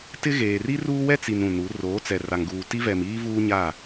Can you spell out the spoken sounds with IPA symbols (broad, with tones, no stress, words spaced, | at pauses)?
tɪ˦ɣeː˨ ri˦ruː˦wɛ˦t͡si˨n ũ˨nu˨˦ roː˨˦t͡sɛ˨ ra˨ŋɡuː˨ ti˦vɛ˨miː˦ vuː˦ɲa˦˨